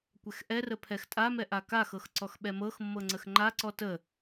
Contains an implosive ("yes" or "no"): yes